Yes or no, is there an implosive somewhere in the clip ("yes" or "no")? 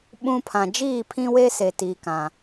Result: yes